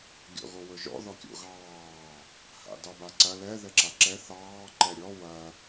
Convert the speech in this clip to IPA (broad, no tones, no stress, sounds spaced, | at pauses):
ɡʲ ɔ̰ ɣ o w ɵ ʒ ɔ̰ ð ɔ kʲ o̰ ɣ ɑː | h a̰ d ɑ b a ǀ ɐ l ɛ ð ɛ ǁ a ǁ ɛ θ ɑː ǃ ɛ ɾʲ ɔ w ɐ